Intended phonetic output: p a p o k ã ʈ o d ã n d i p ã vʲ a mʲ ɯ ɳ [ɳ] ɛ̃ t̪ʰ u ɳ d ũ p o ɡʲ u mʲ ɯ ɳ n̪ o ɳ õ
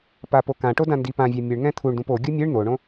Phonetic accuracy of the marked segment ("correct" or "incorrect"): incorrect